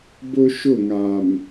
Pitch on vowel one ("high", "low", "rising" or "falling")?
high